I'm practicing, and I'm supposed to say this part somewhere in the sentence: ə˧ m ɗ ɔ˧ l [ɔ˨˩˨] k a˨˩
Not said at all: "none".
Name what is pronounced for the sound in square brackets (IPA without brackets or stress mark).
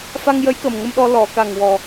ɔ˨˩˨